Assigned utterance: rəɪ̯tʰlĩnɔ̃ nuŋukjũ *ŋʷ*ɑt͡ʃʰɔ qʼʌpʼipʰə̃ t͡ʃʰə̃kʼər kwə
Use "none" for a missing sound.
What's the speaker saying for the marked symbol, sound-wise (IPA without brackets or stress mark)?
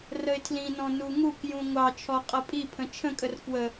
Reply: ŋʷ